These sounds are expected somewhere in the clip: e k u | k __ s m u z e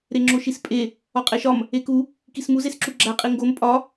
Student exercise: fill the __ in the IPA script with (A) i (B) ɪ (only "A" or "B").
A